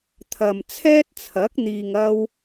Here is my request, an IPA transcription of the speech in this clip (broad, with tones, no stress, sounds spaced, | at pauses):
t̪ʰ ɐ˨ m t͡sʰ ɛː˥ t̚ t͡sʰ ɐ˨˥ k̚ n̪ iː˨ ŋ ɐ˧ w